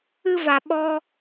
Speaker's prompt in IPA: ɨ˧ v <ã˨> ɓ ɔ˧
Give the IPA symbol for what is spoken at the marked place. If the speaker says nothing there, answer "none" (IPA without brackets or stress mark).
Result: a˨